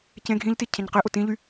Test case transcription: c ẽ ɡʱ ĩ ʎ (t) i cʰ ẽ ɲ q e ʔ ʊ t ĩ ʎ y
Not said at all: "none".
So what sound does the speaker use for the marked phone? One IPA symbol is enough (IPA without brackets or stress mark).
t